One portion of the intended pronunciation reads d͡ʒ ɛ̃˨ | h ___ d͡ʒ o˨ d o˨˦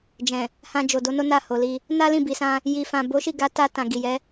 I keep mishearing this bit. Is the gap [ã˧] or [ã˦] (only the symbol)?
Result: ã˧